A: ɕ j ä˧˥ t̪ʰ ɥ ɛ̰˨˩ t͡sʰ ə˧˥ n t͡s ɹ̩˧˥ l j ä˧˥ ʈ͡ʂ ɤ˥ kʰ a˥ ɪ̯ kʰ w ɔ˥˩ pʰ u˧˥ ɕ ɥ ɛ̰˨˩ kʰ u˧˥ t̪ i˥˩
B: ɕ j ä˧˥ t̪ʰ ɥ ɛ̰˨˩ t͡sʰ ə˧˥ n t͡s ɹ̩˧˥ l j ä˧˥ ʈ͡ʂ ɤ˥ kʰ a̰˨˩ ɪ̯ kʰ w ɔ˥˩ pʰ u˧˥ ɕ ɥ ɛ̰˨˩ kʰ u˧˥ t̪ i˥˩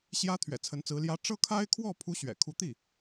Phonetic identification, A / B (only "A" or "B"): A